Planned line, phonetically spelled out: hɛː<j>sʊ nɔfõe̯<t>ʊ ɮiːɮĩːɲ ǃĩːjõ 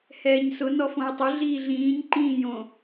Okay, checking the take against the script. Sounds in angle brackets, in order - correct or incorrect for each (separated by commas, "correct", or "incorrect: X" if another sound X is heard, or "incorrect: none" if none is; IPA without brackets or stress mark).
incorrect: ɲ, incorrect: tˤ